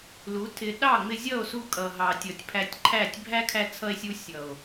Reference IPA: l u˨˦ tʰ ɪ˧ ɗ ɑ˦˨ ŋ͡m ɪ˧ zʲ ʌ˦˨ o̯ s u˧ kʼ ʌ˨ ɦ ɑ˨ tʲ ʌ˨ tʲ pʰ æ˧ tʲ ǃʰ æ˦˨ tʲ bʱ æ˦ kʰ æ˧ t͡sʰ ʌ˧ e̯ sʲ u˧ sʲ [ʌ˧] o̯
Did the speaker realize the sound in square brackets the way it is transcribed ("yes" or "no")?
no